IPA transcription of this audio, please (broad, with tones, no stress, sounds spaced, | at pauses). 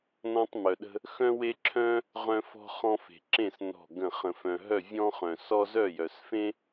n ɔ̃˧ tˤ m œ˩ ɗ ə̤˧ | x œ̃˧ w e˧ ǁʰ œ̃˧ | ʁ œ̃˧ f ɔ̤˧ χ ɔ̃˧ f e̤˩ ǁ ẽ˧˩ s n ɔ̤˧˩ ɡ ə̃˧˩ χ ə̃˩ f œ̃˩ ɦ œ˧˩ vʲ ɔ̃˧ χ œ̃˩ s ɔ˧ z œ˧˩ j œ˩ s f ẽ˧